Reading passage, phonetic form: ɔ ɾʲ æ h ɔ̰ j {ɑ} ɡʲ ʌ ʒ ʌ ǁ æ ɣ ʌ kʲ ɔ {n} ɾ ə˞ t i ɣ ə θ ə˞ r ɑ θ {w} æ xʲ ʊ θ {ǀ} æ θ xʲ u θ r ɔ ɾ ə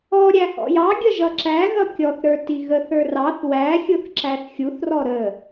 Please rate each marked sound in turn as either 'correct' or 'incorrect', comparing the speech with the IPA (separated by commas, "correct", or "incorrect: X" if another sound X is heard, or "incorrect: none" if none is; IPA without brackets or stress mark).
correct, incorrect: θ, correct, incorrect: ǁ